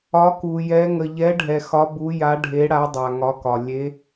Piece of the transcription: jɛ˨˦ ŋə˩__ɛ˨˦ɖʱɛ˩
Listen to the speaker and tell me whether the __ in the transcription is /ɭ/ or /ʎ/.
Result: ʎ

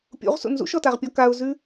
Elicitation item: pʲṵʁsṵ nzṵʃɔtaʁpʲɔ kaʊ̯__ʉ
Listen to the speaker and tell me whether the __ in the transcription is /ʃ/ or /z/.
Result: z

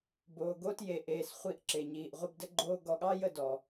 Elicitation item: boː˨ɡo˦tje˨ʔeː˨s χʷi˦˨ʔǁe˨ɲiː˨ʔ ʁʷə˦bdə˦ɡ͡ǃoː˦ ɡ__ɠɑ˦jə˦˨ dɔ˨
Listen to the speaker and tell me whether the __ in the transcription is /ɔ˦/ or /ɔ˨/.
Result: ɔ˨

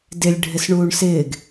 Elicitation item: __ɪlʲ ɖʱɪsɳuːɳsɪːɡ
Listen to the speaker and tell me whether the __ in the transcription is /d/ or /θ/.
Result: d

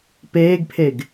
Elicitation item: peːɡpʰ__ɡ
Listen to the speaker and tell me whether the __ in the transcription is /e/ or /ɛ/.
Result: e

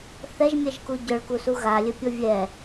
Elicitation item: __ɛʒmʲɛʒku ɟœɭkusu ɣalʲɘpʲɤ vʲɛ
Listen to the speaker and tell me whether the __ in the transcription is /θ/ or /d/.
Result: θ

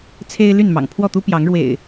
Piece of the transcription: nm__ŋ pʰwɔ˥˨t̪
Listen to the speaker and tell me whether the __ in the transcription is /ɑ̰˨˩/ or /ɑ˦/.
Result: ɑ̰˨˩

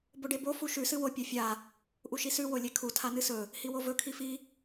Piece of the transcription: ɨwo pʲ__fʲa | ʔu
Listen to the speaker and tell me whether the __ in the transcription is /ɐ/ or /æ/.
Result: ɐ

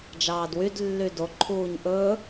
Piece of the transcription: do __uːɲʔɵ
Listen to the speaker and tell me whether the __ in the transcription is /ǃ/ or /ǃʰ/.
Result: ǃʰ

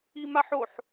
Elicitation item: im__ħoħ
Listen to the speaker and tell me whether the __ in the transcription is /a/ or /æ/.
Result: a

